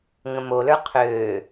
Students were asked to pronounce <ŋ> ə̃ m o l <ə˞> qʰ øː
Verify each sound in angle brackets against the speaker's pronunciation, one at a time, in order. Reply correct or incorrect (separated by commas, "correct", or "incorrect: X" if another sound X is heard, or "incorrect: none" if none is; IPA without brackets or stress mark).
correct, correct